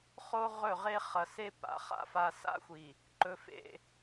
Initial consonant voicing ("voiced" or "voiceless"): voiceless